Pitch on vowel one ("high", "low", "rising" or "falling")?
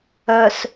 low